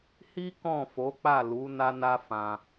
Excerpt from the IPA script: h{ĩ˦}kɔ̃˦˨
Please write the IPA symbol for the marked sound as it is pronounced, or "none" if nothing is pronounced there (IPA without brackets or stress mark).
i˦